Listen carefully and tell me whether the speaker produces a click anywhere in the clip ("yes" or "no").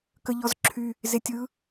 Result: yes